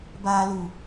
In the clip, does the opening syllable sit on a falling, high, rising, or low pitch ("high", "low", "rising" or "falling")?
low